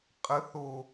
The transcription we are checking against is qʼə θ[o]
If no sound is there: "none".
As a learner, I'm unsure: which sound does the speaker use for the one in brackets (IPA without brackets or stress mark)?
o